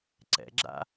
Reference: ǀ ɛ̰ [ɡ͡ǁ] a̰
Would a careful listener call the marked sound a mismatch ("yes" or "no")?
no